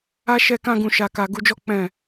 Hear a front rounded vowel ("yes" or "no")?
no